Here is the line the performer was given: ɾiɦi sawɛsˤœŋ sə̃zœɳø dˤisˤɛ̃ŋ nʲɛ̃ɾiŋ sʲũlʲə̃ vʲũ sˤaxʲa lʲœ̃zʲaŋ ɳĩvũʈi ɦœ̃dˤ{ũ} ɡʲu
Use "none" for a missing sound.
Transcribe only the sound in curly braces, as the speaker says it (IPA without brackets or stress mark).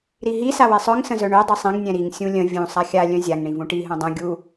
ũ